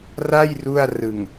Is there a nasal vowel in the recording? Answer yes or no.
no